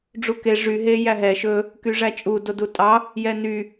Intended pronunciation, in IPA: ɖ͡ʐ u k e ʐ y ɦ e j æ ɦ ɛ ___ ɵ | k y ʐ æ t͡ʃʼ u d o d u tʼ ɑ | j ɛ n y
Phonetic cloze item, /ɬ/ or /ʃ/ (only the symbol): ʃ